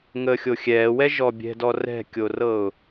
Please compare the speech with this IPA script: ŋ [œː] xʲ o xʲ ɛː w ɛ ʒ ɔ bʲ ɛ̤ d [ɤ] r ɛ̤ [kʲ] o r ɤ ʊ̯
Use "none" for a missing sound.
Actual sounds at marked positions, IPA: əː, ɔ, kʲ

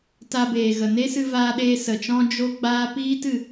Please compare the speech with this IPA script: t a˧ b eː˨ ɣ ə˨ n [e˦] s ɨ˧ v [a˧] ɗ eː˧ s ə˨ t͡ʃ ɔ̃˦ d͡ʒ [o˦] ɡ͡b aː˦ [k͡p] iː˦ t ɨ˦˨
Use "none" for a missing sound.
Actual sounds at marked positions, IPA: e˦, aː˧, o˦, p

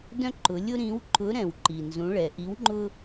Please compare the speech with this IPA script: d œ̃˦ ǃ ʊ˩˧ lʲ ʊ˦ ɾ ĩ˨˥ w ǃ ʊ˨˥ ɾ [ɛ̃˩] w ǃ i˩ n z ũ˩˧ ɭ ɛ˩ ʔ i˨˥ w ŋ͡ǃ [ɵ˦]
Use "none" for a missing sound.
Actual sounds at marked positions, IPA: ɛ̃˩, ʊ˦

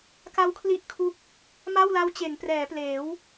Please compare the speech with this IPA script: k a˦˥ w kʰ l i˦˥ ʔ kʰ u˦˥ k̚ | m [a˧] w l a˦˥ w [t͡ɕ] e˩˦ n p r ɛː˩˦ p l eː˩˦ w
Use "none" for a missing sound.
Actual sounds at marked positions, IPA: a˥˩, t͡ɕ

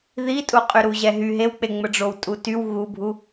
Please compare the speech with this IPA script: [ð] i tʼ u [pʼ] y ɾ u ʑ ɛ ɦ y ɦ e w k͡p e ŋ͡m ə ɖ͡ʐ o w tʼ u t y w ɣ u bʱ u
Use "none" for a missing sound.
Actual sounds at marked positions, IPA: ð, qʼ

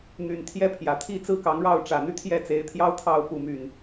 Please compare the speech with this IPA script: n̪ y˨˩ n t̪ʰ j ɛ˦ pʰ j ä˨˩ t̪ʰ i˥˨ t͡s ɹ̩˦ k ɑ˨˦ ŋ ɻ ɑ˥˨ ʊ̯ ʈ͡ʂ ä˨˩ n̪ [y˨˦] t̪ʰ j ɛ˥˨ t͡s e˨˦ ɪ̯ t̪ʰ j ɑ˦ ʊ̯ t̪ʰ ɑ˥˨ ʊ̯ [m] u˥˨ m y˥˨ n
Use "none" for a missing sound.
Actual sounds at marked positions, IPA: y˦, p

